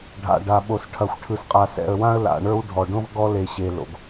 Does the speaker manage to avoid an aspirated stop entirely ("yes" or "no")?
no